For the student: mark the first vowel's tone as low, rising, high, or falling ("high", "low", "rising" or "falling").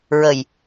low